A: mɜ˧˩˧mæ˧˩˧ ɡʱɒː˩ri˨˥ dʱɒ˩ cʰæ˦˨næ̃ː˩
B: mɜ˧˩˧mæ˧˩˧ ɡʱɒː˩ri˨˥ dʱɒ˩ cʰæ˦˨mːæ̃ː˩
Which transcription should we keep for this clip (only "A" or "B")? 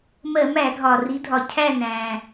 A